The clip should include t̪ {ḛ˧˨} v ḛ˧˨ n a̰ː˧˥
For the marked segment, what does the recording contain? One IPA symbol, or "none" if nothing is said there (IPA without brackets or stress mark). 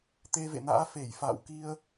e˧